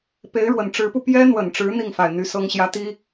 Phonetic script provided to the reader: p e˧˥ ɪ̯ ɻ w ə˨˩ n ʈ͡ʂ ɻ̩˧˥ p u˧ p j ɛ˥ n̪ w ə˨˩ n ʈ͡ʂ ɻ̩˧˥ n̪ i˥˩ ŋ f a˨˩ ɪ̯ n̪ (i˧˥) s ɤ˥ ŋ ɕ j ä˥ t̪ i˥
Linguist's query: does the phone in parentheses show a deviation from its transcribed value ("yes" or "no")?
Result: yes